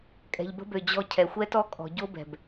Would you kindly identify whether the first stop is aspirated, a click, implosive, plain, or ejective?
ejective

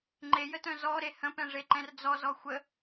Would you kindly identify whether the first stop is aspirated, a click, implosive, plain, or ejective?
click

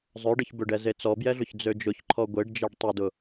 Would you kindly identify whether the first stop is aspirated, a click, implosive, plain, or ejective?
plain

